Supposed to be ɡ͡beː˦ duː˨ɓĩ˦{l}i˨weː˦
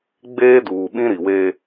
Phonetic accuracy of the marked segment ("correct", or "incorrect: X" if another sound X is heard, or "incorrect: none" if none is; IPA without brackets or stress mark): incorrect: ɾ